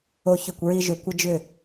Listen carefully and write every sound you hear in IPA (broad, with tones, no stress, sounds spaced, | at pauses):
o˥ ç ʏ˥˧ kʷ ɹ i˥ ʒ ʏ˥˧ kʷ ɪ˥ d͡ʒ ʏ˥˧